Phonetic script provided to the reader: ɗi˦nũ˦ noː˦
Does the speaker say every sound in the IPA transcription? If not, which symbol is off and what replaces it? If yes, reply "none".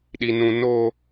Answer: none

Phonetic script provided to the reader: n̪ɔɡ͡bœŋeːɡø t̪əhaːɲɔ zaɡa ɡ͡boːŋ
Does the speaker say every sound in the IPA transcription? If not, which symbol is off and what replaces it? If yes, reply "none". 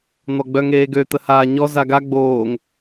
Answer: none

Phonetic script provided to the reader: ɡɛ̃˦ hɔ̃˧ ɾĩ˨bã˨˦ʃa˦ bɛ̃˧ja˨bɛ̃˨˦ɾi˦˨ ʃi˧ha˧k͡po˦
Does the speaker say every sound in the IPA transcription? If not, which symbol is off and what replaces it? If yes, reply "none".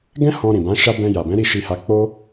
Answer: none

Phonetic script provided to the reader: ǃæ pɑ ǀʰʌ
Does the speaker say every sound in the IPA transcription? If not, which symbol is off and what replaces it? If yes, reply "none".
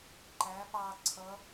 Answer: none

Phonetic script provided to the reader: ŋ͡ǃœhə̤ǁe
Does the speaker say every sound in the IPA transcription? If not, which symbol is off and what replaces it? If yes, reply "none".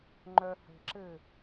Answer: e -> ɘ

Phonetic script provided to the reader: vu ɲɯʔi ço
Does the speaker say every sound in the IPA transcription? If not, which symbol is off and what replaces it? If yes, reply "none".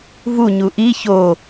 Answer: ɯ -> u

